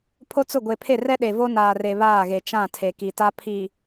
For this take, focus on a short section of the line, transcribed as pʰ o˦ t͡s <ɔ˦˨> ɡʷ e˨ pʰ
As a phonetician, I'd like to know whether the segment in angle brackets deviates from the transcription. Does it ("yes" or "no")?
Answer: yes